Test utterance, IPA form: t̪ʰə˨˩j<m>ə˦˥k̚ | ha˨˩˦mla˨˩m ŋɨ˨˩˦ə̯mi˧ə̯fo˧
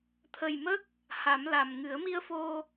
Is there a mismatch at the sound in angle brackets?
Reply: no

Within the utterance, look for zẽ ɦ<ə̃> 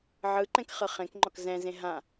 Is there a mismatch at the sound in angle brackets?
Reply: yes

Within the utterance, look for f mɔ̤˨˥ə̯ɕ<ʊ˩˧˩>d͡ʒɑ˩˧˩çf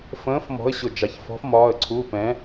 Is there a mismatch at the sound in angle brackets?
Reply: no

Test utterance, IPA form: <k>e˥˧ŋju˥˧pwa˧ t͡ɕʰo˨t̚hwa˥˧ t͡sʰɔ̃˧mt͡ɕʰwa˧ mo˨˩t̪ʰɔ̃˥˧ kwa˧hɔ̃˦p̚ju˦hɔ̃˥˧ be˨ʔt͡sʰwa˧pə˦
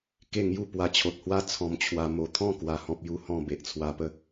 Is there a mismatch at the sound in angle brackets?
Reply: no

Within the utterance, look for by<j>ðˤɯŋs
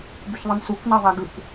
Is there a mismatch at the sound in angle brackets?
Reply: yes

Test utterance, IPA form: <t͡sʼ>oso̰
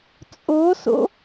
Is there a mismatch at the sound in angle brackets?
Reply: no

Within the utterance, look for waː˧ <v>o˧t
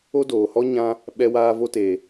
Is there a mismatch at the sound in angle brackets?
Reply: no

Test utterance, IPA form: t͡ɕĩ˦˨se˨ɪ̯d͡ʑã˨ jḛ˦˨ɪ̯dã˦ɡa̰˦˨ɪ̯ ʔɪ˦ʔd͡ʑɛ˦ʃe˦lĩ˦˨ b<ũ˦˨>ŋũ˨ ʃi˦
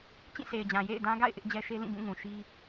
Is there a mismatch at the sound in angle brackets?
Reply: no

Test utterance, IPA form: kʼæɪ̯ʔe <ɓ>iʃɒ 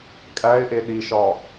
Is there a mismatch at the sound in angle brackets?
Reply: yes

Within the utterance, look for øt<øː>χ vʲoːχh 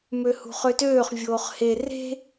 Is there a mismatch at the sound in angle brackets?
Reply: no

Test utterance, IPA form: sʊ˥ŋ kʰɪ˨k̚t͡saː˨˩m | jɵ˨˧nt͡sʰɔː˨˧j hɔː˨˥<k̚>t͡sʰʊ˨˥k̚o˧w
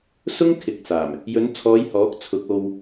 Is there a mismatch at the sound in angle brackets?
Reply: no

